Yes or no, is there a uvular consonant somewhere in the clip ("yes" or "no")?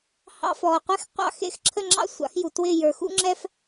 yes